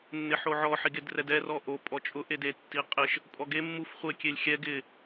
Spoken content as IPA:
nː ɪ ħ o ʕ ɔ ħ i ɡ e d r ɛ d ɛ r ɔ ʔ o pʼ ɔ t͡ʃʼ ʊ ʔ e d e tː i qʼ ɪ ʃ | pʼ ɔ ɡ e mː u f χʷ e kʲ e lʲ xʲ ɛ ɡ ɪ

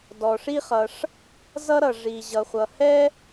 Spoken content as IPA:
d ɔ˩ ʂ i˥ χ ʌ˩ ʂ | z ʌ˥ ɾ ʌ˩ ʐ i˩ ʑ ʌ˩ χʷ ʌ˩ h ɛ˥

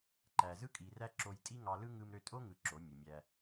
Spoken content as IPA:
ǃ æ˨ z ɯ˦ kʼ i˨ r æ˦ ǁ o˧ j tʼ i˦ ŋ ɑ˧ l ɯ˦ ŋ ɯ˧ m ɾ ø˧ tʼ o˦ ŋ ɯ˧ ǁ o˨˦ mʲ e˨ mʲ æ˧

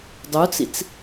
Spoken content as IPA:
dˤ u t͡s ḭ t͡s

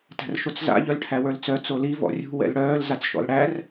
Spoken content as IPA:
t æ̤ r ʃ o t͡s z a̰ ʎ œ l ʈʰ æ w ə˞ l t͡s œ t͡s o l i v ɔ̰ rʲ ṳ w ɛ̰ l ɽ œː l z a t͡s ʃ ɔ̰ l ɽ æ r

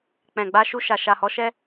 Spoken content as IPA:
k͡p ɛ̃˨ ɡ͡b a˧ ʃ u˧ ʃ a˨ ʃ a˨ h ɔ˨˦ ʃ ɛ˦

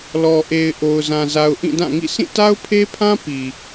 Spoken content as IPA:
l ɔ˨ ʔ e˨ ɪ̯ ʔ o˨ ʊ̯ z ã˨ z a˨ ʊ̯ ʔ ĩ˦˨ d ã˦˨ ŋ ḭ˦˨ s ĩ˦˨ t a˦ ʊ̯ pʰ e˦ pʰ ã˦ p i˨

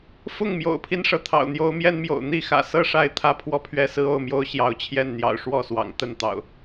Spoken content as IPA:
f ʊ˥˨ ŋ m j o̰˨˩ ʊ̯ pʰ i˦ n ʂ ɤ˩ t̪ʰ ɑ̰˨˩ ʊ̯ n̪ j o˨˦ ʊ̯ m j ɛ˦ n m j o̰˨˩ ʊ̯ n̪ i˥˨ x ä̰˨˩ s ɤ˥˨ ʂ a˥˨ ɪ̯ t̪ʰ ä˥˨ pʰ w ɔ˥˨ pʰ ɥ ɛ˥˨ s ɹ̩˦ o˥˨ ʊ̯ m j o˦ ʊ̯ ɕ j ɑ˨˦ ʊ̯ t͡ɕʰ j ɛ˥˨ n n̪ j ɑ̰˨˩ ʊ̯ ʂ w ɔ˥˨ s w ɑ̰˨˩ ŋ t̪ ə˥˨ n t̪ ɑ̰˨˩ ʊ̯

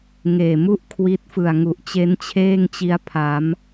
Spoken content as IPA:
ŋ eː˨˩ m u˥˩ ʔ kʰ w i˦˥ t̚ f ɯ˨˩ a̯ ŋ u˨˩ ʔ t͡ɕ e˦˥ n t͡ɕʰ eː˥˩ ŋ t͡ɕ i˦˥ a̯ pʰ a˩˦ m

